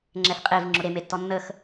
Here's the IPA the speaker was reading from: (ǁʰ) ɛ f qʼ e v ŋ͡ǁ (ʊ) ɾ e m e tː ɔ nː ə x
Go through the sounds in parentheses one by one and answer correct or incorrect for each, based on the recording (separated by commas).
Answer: incorrect, correct